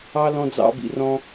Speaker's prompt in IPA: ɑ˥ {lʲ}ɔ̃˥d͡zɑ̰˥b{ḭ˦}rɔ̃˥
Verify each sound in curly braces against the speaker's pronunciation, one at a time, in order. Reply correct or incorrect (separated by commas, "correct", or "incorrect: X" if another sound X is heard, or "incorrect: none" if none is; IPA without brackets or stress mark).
incorrect: l, correct